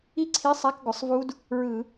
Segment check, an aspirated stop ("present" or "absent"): present